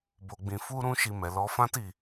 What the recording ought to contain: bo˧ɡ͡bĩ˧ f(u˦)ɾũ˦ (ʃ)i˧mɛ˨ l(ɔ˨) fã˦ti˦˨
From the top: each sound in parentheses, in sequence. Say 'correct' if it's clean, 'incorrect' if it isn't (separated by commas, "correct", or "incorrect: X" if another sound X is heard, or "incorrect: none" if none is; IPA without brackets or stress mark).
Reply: correct, correct, incorrect: ɔ˧